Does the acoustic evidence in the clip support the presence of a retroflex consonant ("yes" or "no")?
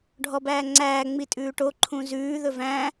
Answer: yes